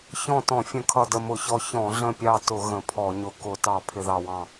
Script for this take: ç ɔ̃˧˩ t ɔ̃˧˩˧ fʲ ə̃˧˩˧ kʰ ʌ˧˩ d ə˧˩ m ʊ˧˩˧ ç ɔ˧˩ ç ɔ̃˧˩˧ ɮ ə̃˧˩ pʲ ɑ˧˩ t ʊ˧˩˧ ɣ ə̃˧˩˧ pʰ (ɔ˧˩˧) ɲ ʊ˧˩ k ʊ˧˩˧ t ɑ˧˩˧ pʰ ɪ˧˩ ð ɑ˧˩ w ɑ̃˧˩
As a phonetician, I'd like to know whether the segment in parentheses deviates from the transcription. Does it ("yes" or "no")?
no